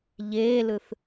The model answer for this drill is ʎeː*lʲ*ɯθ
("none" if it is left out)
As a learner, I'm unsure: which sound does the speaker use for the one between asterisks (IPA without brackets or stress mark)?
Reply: l